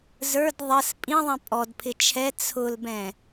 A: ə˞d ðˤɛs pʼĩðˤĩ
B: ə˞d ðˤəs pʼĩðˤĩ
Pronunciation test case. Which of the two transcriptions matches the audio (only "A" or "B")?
B